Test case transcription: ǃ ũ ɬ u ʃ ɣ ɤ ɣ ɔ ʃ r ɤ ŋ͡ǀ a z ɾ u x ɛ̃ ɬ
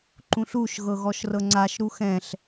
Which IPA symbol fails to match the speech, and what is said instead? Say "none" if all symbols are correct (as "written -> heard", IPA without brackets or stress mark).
z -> ʃ